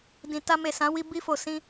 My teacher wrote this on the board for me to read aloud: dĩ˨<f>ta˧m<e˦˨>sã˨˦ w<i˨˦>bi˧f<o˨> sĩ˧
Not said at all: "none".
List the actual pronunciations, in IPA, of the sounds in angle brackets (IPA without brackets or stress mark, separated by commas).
none, e˨, i˧, o˨